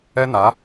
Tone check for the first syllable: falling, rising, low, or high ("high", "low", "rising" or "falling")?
high